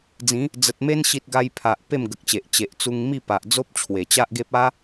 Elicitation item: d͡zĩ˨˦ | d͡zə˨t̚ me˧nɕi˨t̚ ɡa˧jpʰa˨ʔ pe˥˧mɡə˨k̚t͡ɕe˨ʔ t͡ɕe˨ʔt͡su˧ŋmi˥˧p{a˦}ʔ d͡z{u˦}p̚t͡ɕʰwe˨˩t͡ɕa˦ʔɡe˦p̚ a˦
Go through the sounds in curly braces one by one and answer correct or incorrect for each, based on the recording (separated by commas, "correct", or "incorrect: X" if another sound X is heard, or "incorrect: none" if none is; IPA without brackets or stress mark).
incorrect: a˨, incorrect: o˦